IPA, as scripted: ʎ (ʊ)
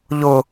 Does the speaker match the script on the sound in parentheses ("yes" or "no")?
yes